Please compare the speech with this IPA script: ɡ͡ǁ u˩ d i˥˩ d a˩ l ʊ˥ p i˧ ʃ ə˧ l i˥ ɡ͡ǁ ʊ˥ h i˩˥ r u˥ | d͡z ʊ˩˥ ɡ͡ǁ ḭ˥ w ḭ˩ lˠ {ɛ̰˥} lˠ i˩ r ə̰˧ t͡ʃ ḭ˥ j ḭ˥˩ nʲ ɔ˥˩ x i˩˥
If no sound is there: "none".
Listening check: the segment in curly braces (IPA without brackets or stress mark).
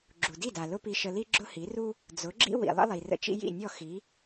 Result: ə̰˥